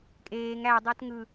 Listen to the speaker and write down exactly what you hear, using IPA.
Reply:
kʼ eː ŋ æ dˤ o t ŋ ɯ

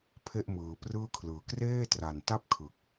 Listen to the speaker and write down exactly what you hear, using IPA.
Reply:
pʰ e˥˩ ʔ m ɯː˩˦ p r ɯː˥˩ kʰ l ɯː˨˩ k r eː˥˩ t r a˨˩ n t a˥˩ p̚ kʰ ɯ˨˩ k̚

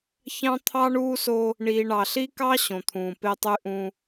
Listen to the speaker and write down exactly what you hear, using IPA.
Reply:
ç ɑ̃˦ t̪ʰ ɑ˦ ɳ uː˦ s o˦ | ɳ iː˨ ɳ ɑ˨ ɬ i˦ k ɑ˦ ɕ õ˨ t̪ʰ ũː˨ p e˦ tˤ y˦ ʔ ũ˦

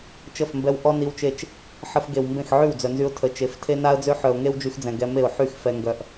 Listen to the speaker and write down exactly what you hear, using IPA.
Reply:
t͡ʃ ə˦˨ f m b ɛ˧ w ʔ ɔ˦ n i˧ w t͡ʃ e˧ t͡ʃ | ħ ə˧ f ɡ e˨ w m b ẽ˦˨ x ʕ y˦˨ w d͡z œ˨ n z y˧ ʊ̯ tʰ ə˨˦ t͡ʃ e˨˦ f tʰ e˦ n a˦ ə̯ d͡z ø˦ ħ œ˨ ʊ̯ ŋ e˦ w d͡ʒ y˧ x d͡z ɛ̃˨ ɡ ɛ˧ m e˦˨ ʊ̯ ħ y˦˨ x f ɛ˧ ŋ ɡ œ˧ ʔ

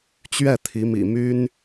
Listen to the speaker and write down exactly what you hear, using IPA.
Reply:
t͡ɕ ɥ ɛ˥˩ t̪ʰ i˧˥ m ḭ˨˩ m y˥ n

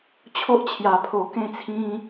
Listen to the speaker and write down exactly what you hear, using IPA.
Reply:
t͡ɕʰ o˦ ʔ t͡ɕʰ j a˧ pʰ o˧ k ẽ˥˧ t͡sʰ ĩ˦

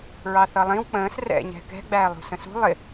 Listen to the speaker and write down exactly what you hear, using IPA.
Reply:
ɹ ɑ θ ʌ lˠ ĩ w k͡p ə̃ː s r ɛ̰ ɲ ɛ̤ k ɛ̤ ɡ͡b æː lˠ ṳ s ə̃ s ṳ lˠ ɪ

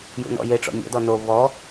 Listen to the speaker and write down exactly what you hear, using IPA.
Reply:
j ṵ n ɔ̰ j e ʈ͡ʂ ɔ̰ nʲ ɔ̰ d ɔ n o β ɔ

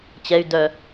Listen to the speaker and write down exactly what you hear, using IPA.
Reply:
t͡ɕ ɛ y̯ d œ

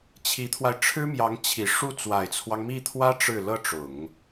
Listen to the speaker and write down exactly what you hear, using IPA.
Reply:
t͡ɕʰ i˧˥ t̪ʰ w a˧ ɪ̯ ʈ͡ʂʰ ɻ̩˥ m j ɑ˧˥ ŋ t͡ɕʰ i˨˩ ʂ u˥˩ t͡s w a˨˩ ɪ̯ t͡sʰ w ɑ˦ ŋ m i˥˩ t̪ʰ w ä˥ ʈ͡ʂ ɻ̩˥˩ l ɤ˥ ʈ͡ʂ ʊ˨˩˦ ŋ

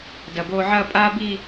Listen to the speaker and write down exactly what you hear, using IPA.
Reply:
d ɐ˨˩ b oː˧ ʕ ɐː˥˧ pʼ aː˥ b i˥˧

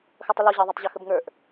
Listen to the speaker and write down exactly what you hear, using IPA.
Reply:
x ʌ tˤ ə l ɔ ʑ ɑ ðˤ ʌ tˤ ʑ ʌ x ə b ŋ ə˞ ʔ

